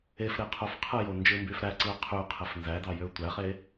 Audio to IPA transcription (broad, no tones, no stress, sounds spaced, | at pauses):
e f ɾ e qʰ o f qʰ ɯ j o n d͡ʒ ɯ m b y f ɾ æ ǀ ɯ ɐ̯ qʰ y qʰ e f n z æ d ɑ j ø tʷ æ χ e